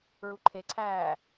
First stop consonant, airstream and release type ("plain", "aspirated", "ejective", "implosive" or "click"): click